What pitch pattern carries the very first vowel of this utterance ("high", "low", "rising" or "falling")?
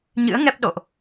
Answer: rising